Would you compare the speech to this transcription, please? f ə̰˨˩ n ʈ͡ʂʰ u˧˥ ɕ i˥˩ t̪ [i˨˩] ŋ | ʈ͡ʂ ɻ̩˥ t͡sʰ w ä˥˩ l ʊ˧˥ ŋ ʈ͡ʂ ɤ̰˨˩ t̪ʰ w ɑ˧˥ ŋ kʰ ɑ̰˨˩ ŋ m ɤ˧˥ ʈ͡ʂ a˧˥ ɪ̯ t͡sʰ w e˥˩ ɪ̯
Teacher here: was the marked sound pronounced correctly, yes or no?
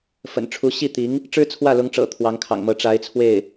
no